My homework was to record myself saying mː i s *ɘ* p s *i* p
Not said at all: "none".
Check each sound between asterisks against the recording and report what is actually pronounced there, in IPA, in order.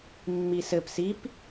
ɘ, i

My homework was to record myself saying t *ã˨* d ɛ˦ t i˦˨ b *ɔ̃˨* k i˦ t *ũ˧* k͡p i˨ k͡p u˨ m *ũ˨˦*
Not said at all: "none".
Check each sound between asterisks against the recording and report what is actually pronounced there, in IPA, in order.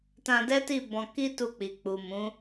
ã˧, ɔ̃˧, u˧, ũ˨˦

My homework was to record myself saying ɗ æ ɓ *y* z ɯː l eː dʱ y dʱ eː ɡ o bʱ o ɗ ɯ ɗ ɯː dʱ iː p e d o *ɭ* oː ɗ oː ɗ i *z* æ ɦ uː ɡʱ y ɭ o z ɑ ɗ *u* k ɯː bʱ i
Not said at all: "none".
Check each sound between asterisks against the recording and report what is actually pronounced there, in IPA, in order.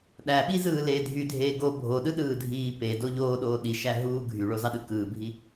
i, ʎ, ʃ, ɯ

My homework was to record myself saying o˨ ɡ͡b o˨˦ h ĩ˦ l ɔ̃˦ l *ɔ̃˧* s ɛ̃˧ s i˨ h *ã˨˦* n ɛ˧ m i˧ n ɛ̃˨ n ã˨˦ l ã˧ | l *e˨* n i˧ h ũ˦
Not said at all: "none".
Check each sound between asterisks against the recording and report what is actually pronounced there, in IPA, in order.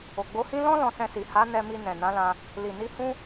ɔ̃˧, a˨˦, i˨

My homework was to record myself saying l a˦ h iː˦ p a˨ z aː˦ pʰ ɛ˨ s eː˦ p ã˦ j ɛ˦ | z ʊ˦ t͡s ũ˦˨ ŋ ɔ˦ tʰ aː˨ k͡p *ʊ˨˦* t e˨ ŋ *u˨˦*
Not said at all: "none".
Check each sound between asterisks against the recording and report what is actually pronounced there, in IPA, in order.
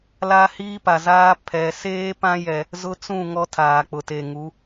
ʊ˨, u˨˦

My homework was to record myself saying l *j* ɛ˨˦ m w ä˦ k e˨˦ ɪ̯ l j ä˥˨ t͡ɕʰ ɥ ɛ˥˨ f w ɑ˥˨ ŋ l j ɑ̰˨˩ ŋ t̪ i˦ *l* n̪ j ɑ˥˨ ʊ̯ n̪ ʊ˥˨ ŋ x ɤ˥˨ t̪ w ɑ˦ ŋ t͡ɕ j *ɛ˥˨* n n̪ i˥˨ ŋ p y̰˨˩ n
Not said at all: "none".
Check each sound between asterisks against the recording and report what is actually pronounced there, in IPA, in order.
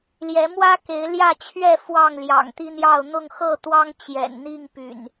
j, none, ɛ̰˨˩

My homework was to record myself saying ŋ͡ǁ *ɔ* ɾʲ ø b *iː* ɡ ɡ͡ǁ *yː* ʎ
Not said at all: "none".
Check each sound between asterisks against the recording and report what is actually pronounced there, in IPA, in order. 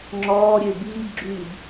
ɔː, iː, yː

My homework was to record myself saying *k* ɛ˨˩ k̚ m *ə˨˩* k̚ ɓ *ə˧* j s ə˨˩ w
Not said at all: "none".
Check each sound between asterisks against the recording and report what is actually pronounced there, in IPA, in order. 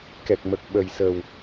k, ə˨˩, ə˨˩

